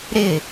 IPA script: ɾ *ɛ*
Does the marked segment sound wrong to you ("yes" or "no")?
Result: yes